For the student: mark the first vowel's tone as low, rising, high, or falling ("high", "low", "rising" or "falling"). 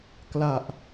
low